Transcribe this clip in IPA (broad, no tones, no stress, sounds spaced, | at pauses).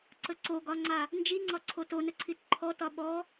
ǀ ə ǀ o ɡ ɒ ŋ͡ǀ a | n d͡ʒ i ŋ͡ǀ ɒ ǀʰ o t o n ə ǀʰ i t ǃʰ ɔ t ɒ ɓ ɔ